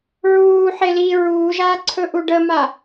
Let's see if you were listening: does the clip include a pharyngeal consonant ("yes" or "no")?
yes